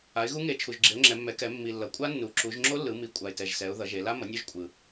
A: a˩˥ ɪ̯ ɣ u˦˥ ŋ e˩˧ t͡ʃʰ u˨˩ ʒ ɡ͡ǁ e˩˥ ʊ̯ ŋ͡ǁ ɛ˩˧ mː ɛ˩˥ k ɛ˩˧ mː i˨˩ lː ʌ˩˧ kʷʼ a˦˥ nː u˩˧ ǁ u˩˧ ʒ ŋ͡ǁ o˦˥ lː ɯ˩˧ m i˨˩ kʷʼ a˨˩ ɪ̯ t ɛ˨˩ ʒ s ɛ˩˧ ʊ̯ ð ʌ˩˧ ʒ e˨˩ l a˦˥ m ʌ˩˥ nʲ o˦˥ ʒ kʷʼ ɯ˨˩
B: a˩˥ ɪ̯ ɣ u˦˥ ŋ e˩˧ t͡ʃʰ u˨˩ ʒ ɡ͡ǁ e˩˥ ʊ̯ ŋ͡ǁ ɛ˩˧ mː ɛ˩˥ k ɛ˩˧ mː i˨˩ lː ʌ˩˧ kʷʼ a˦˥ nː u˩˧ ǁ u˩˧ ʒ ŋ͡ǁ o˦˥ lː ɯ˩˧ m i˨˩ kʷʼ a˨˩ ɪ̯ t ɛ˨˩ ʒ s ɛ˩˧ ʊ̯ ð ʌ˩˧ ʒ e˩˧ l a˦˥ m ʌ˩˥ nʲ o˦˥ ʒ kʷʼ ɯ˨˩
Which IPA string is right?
B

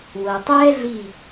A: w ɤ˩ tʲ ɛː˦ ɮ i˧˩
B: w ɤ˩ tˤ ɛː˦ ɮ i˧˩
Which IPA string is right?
B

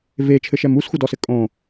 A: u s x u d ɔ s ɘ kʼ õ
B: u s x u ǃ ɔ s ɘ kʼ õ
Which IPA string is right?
A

